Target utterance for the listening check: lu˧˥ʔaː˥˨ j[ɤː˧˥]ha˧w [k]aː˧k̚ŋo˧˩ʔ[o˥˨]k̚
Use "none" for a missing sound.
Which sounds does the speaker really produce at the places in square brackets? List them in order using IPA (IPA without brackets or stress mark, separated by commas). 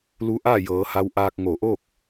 ɤː˩˧, ʔ, o˥˨